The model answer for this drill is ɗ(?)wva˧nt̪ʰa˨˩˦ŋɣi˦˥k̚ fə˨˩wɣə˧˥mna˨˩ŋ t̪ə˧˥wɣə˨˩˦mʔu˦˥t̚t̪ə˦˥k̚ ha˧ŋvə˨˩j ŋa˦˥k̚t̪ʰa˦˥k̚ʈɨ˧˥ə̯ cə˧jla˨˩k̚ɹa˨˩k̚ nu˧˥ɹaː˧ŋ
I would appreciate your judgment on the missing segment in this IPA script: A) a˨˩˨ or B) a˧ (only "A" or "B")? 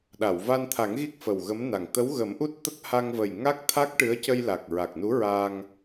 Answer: A